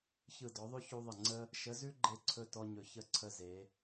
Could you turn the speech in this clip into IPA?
ç ɯ˦˨ d ɔ˧˥ ðˤ ʉ˥ ç u˥ ðˤ ə˦˨ ŋ͡ǀ ə˥ | ʃ ə˧˥ z ʉ˥ ɡ͡ǃ e˦˨ ǀʰ ɵ˦˨ t ɔ˥ ɲ ɵ˧˥ ç ə˥ ǀʰ ə˥ z e˧˥

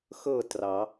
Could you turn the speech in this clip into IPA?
x ɤ˦˨ t r ɑ˨˩˦

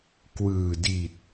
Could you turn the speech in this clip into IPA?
k w ɯː˨˩ d i˨˩ t̚

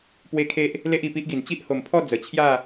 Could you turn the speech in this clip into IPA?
p w e˦ kʰ e˦ ʔ | l e˦ ʔ i˨˩ p i˦ ʔ ɡ i˨˩ n t͡ɕ i˦ ʔ h o˨˩ m pʰ ɔ˥˧ d͡z ə˨˩ t͡ɕʰ j a˥˧

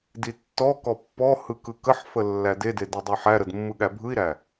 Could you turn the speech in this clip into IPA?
d i tː ɔ k ɔ pː ɔ h ɯ k ɯ k ə ħ f ə lː æ d e d e d e dˤ a ħ æ ɾ ə d mː ɯ ɠ æ bʱ ɯ i̯ ɾ æ

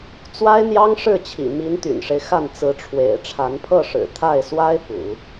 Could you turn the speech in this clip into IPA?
t͡s w a˥ ɪ̯ n̪ j ɑ˥ ŋ ʂ ɻ̩˥˩ t͡ɕʰ ḭ˨˩ m i˧˥ n t̪ y̰˨˩ n ʂ e˦ ɪ̯ x a˥˩ n t͡s ɹ̩˧˥ ʈ͡ʂʰ w ḛ˨˩ ɪ̯ ʈ͡ʂʰ a˧˥ n pʰ ɤ˥˩ ʂ ɻ̩˨˩ t̪ʰ a˥˩ ɪ̯ s w a˥ ɪ̯ p ṵ˨˩˦

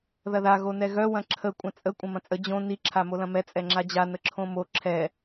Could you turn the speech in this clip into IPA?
ð ɐ ð a ɣ o n ɛ ɣ œ w ɐ̃ ǁʰ ə kʷʼ ɐ̃ t͡sʼ ə kʷʼ ɐ̃ m ɐ̃ t͡sʼ ə d͡ʑ õ n i ǁʰ a m o l ɐ̃ m ɛ t͡sʼ ɛ ŋ͡ǁ a d͡ʑ a n ə ǁʰ õ m o ǁʰ ɛ

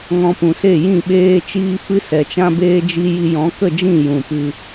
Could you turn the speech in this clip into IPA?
ŋ ɔ̃˧ p ũ˨ s e˦˨ j ĩ˦˨ ɓ eː˦ t͡ʃ iː˦ f ɨ˦ s ɛ˨ t͡ʃ ã˦ b eː˦ d͡ʒ i˦ j i˧ j ɔ̃˨˦ k ə˦˨ d͡ʒ ĩ˦˨ j ũ˨ p ɨ˧

